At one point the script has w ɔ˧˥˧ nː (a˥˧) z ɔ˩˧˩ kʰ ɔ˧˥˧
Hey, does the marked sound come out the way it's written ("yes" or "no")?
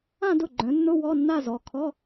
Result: yes